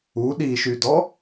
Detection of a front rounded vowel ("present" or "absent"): present